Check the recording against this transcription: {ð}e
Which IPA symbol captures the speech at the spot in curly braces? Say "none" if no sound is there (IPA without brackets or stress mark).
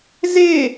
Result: z